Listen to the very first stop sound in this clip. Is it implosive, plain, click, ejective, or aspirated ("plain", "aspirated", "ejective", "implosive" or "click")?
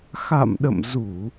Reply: implosive